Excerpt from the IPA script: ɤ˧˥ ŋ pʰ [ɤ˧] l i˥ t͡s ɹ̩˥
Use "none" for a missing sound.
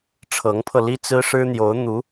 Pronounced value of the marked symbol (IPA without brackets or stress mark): ɤ˧